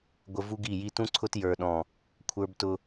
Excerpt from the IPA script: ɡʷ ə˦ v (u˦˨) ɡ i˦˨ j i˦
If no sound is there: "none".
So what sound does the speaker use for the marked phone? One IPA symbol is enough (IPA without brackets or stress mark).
u˦